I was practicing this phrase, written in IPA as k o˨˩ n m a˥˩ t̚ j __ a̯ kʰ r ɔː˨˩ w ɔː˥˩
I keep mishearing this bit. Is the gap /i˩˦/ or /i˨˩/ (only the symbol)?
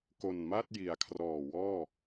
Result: i˩˦